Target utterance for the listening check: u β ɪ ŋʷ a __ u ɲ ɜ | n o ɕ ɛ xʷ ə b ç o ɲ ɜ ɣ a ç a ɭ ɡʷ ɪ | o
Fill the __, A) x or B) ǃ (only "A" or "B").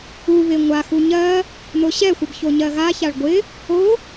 A